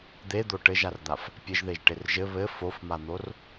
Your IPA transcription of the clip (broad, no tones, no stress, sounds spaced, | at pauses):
d̪ e d̪ o ʈ ɘ ʒ a r d̪ a f | pʲ ɘ ʒ ð e ʒ ʈ e r ʒ ɘ β ɘ f o f m a n̪ o r